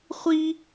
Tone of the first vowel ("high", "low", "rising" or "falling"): high